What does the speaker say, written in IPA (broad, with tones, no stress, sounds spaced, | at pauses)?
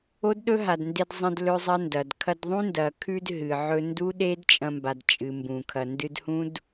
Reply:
o˦ d ɗ ɵ˦ ɦ a˨ d n d e˧ d zˤ ɐ̃˧ d l ɵ˦ zˤ ɐ˦ n d ɐ˨ d kʰ ɐ˧ d ðˤ ũ˦ n d ɐ˨ kʰ ʉ˧ d ɦ ɨ˨ ʕ ɵ˧ n d u˦ ɗ e˦ d t͡ʃʼ ɐ̃˧ m b a˨ d t͡ʃʼ ɨ˨ m b ũ˨ kʰ ɐ˨ n d ɨ˧ d h ũ˦ d